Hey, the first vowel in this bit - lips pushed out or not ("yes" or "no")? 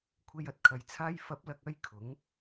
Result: no